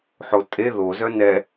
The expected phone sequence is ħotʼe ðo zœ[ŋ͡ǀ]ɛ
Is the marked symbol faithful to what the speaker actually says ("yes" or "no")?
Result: no